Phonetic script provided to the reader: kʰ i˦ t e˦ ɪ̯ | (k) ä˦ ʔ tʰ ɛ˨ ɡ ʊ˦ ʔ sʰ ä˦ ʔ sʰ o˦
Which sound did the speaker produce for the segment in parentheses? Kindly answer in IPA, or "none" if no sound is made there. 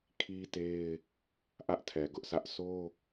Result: ʔ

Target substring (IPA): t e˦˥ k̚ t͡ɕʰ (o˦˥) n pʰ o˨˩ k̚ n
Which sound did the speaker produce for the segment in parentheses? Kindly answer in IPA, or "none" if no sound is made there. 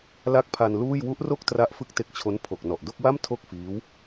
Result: o˦˥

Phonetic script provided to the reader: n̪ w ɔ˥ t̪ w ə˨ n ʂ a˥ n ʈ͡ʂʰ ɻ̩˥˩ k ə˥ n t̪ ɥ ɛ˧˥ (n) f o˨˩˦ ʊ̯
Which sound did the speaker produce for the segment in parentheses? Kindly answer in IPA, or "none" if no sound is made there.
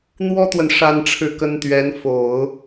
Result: n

